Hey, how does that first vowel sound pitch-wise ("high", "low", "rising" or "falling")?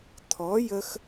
rising